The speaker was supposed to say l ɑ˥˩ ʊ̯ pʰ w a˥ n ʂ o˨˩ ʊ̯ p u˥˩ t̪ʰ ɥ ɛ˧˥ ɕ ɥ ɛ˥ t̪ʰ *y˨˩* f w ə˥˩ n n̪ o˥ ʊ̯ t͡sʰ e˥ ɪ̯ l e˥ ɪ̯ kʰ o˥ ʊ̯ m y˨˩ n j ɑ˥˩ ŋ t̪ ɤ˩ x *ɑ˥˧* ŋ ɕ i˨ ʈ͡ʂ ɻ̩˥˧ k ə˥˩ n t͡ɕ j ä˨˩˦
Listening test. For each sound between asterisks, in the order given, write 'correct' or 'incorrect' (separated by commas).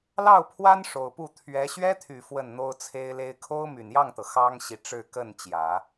correct, incorrect